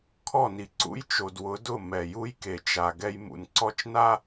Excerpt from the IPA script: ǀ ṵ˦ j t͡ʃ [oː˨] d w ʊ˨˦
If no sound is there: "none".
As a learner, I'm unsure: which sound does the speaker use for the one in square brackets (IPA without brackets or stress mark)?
o˨